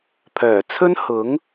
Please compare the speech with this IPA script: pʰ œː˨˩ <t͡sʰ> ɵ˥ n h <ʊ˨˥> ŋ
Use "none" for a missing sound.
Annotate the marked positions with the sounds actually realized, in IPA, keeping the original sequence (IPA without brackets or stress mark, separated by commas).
t͡sʰ, ʊ˨˥